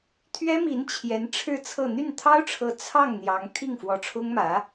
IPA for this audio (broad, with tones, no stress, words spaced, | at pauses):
t̪ʰɥɛ˥mi˧˥n t͡ɕʰjɛ˧˥nʈ͡ʂʰɻ̩˥˧t͡sʰɤ˥˧ n̪y˥˩nt̪ʰɑ˥ʊ̯ʈ͡ʂʰɤ˧˥ t͡sʰɑ˥˩ŋ n̪jɑ˧˥ŋ t̪ʰi˥˩ŋfwɔ˧˥ʈ͡ʂʰʊ˥ŋ mä˧˥